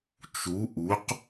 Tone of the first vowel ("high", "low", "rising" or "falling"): rising